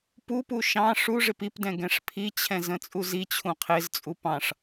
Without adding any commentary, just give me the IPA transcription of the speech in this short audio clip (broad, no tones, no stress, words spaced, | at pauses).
pupu ʃɑ̃ ʂuʐɪp ipdɛ̃ ɡɛ̃ʂpʰit͡ɕʰɛ̃ zə̃t͡sʼuzit͡ɕʰũ qʰɪzt͡sʼu pɑ̃ʂ